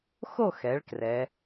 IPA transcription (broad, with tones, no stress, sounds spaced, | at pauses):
x o˥˧ x ɛ˩˧ ɭ k r ɛ˩˧